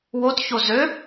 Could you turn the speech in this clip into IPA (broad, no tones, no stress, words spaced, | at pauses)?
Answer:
wotço zø